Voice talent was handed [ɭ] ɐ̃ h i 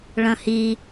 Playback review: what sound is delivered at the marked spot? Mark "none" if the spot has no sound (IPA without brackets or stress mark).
ɭ